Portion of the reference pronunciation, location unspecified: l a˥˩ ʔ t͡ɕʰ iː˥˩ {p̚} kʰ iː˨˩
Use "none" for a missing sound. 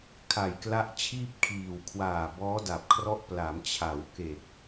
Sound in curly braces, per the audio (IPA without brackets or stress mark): p̚